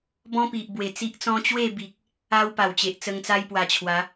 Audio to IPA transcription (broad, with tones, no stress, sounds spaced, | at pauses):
b ɔ̃˦ p i˨ ʔ b w e˨˩ t͡s i˦ ʔ t͡s ɔ̃˦ t͡ɕ w e˥˧ b i˨ k̚ | a˦ w p a˨˩ w t͡ɕ e˨ ʔ t͡s ə˧ ŋ t͡s a˦ j p w a˧ t͡ɕʰ w a˨˦